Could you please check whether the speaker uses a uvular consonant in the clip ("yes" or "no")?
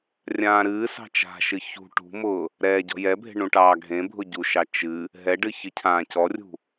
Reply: no